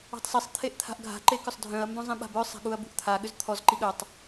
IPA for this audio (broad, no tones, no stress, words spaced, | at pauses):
ɔ̤tˤsesˤ t̪ʰeʔt̪ʰa̤ʔɡʱa̤ ǃekʏsˤdʱœ̃ɐ̯ mbœ̃zˤĩɓa̤bœ sˤa̤ɠuɐ̯bṳʔt̪ʰa ɠʏzt̪ʰɔz ǃiɠœtˤ